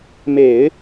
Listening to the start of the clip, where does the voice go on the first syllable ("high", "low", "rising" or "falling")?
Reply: low